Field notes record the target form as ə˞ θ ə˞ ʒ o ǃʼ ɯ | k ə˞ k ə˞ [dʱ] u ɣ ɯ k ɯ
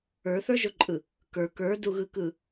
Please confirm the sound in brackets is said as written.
no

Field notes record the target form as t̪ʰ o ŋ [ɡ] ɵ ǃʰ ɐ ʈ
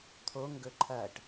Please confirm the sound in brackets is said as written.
yes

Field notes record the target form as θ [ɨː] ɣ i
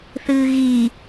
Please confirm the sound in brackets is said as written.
yes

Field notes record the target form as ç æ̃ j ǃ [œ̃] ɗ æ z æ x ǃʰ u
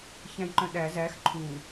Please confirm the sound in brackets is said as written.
yes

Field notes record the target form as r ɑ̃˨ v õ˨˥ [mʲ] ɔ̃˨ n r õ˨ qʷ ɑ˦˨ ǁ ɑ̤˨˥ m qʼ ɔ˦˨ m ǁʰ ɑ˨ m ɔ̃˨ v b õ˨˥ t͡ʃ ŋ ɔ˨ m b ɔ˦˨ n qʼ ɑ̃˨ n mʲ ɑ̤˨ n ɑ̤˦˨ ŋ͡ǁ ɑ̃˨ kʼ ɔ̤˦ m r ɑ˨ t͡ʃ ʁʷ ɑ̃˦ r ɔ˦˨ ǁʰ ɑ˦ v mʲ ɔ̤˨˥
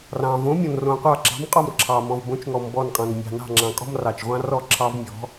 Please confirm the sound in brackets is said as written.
yes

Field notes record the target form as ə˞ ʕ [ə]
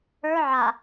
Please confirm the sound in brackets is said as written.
no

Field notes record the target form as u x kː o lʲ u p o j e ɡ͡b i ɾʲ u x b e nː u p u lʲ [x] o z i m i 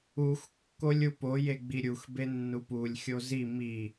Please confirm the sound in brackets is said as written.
no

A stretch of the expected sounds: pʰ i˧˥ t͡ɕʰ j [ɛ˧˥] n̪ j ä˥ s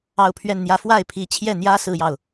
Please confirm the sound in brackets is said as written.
no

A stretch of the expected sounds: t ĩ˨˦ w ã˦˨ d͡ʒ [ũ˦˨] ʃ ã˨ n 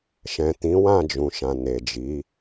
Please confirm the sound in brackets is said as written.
no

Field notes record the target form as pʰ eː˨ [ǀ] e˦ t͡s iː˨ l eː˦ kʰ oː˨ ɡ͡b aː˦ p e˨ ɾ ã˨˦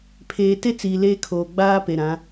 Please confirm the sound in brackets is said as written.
no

